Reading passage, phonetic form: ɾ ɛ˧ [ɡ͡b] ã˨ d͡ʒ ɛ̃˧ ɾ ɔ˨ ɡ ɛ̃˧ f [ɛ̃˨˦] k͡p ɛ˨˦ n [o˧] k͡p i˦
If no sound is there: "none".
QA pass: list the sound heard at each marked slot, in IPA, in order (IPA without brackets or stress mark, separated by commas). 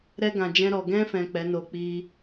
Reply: ɡ, ɛ̃˨, o˧